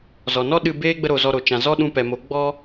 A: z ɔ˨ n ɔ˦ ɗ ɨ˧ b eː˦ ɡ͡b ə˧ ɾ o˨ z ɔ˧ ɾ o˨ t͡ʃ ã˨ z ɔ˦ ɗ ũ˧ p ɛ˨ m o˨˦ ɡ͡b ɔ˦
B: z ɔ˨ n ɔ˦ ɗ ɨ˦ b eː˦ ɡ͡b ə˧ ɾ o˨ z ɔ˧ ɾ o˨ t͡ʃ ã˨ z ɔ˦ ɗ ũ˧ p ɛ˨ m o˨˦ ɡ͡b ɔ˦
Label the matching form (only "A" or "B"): A